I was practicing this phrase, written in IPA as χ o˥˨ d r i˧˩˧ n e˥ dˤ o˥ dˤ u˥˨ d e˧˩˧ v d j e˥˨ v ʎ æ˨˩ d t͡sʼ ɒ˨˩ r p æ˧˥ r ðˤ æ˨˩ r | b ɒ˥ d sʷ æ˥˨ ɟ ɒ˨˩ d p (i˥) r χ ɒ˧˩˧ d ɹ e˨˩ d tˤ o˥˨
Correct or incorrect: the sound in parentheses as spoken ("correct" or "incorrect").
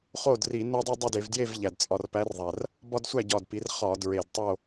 incorrect